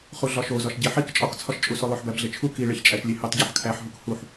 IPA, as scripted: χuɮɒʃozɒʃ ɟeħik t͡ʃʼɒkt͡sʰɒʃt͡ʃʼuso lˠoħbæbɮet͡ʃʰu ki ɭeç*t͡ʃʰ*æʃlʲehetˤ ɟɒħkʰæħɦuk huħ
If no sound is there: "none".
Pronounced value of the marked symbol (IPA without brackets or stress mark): t͡ʃʼ